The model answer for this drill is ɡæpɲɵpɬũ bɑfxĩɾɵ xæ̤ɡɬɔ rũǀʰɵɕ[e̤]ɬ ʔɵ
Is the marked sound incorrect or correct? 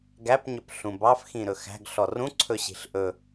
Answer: incorrect